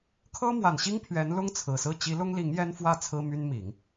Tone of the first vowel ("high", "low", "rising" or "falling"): high